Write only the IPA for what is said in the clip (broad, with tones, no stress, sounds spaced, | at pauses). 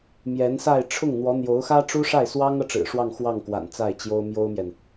m j ɛ˧˥ n s a˥˧ ɪ̯ ʈ͡ʂʰ ʊ˥˩ ŋ n̪ w ɔ˧˥ n̪ j o˧˥ ʊ̯ x ä˥ ʈ͡ʂ u˥ ʂ a˥˩ ɪ̯ s w ɑ˥ ŋ ɤ˨ ʈ͡ʂ ɻ̩˨˩ ʂ w ɑ˥˧ ŋ x w ɑ˥˩ ŋ k w a̰˨˩ n t͡s a˥˩ ɪ̯ t͡ɕ j o˥ ʊ̯ m j o˥ ʊ̯ m j ɛ˨ n